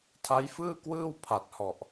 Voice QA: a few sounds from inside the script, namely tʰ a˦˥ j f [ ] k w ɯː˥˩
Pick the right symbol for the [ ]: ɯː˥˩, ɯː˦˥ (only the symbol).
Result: ɯː˥˩